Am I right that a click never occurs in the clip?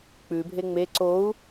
no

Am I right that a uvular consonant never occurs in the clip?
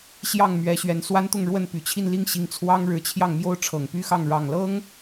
yes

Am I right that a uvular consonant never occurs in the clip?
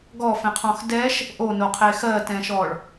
no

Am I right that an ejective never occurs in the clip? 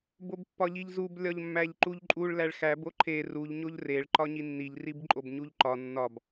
no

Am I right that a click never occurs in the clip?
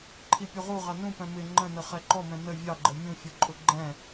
no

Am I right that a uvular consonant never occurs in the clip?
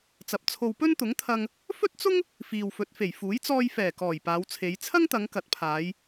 yes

